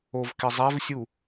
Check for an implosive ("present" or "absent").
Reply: absent